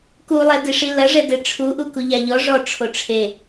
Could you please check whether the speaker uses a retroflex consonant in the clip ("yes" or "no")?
yes